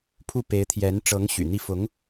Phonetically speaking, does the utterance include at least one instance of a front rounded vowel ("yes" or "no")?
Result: yes